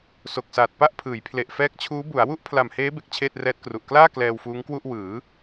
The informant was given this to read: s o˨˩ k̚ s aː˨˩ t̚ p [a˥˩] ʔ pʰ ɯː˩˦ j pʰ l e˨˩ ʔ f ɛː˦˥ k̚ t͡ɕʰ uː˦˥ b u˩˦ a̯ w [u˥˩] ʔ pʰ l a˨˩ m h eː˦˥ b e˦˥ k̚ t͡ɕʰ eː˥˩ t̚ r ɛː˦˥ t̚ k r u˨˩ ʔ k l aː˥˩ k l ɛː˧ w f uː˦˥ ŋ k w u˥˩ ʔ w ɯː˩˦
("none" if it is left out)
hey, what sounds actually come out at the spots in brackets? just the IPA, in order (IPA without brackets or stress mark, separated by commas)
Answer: a˥˩, u˥˩